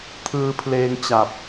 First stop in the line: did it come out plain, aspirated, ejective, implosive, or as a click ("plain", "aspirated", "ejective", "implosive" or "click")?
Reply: aspirated